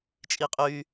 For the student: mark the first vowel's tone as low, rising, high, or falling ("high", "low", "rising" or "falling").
high